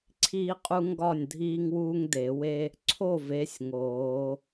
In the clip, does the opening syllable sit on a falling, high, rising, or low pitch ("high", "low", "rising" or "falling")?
high